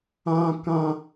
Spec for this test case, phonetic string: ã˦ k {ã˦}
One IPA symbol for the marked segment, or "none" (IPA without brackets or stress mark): ã˦